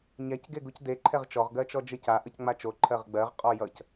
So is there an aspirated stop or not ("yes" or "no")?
yes